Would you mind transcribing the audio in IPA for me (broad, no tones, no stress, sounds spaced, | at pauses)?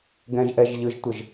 ɡ ɛ̃ ʒ ʔ ɛ ʒ ʎ ɯ ʒ tʷ ɘ ʒ